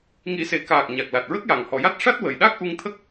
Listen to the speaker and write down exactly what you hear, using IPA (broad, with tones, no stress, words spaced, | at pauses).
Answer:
ŋi˨˩˦se˨˩kaː˨˩k̚ ɲa˨˩k̚ la˨˩t̚ɹə˦˥k̚ja˨˩ŋ hɔ˨˩˨ja˦˥t̚ ʂa˦˥t̚wə˨˩jɗa˦˥k̚ ʔu˧ŋt̪ʰə˦˥k̚